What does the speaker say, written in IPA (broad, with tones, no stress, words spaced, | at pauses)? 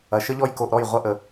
ɐ˨ʃə˦ʎɔ˦j ko˧ʔɾɔ˦˨j ʁʷɐ˦ʔə˧